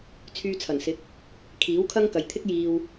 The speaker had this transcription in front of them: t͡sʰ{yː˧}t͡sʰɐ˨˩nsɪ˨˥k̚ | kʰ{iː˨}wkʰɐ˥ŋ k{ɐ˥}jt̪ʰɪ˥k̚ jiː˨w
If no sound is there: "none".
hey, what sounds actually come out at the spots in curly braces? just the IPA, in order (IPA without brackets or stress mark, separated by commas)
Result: yː˧, iː˨˥, ɐ˨